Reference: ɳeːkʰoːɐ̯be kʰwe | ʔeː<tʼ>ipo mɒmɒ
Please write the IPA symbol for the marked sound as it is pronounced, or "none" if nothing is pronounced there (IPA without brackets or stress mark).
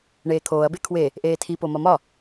tʰ